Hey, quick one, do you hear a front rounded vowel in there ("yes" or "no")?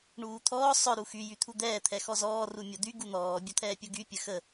yes